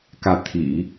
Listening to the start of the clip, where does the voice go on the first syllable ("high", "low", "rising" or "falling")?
rising